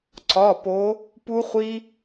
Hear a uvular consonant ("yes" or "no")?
yes